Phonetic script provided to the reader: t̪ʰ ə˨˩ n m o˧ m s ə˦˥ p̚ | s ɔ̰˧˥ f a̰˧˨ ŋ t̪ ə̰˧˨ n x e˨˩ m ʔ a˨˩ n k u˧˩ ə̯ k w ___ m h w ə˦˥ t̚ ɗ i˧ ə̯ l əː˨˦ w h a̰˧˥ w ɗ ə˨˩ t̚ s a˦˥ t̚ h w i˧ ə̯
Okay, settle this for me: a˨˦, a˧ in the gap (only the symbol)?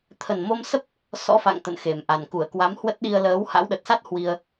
a˨˦